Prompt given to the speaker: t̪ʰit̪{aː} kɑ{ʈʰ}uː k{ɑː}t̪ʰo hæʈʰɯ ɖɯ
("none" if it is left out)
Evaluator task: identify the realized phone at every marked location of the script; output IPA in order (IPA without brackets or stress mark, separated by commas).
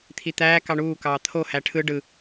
æː, ɳ, ɑː